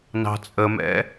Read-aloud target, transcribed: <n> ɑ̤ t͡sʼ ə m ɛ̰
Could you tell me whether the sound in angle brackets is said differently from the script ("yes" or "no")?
no